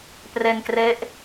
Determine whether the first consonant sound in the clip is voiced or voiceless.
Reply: voiceless